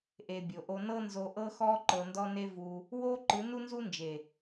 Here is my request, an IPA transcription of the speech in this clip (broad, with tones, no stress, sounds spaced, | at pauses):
ʔ e˨ bʲ o˨ ʔ o˧ n ɤ˦ n z o˧ ʔ ɤ˦ x ɔ˦ ǃ ɤ˧ n d ɔ˦ n e˦ v u˧ | w o˦ ǃ ɯ˨˦ n u˦ n z u˦ n d͡ʒ e˨